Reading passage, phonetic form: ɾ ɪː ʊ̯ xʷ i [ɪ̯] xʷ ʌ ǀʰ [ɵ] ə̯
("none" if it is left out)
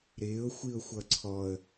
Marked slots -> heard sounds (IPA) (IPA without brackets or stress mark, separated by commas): ʊ̯, ɔ